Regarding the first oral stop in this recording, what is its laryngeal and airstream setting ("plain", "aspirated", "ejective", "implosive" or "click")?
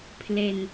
aspirated